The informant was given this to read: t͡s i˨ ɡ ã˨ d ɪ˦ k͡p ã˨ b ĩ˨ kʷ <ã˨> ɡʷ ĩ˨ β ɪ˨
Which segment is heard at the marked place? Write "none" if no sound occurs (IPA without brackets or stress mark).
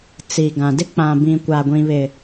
a˨